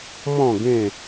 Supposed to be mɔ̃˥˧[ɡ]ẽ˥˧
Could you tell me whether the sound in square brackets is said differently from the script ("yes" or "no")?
no